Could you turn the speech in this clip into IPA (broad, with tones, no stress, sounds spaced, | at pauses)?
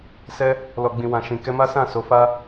s ɛ˦ | l ɔ˨ ɡ͡b ĩ˨ w ã˨ ʃ ĩ˨ k ɛ˧ m a˦ s ã˦˨ s o˨˦ f a˦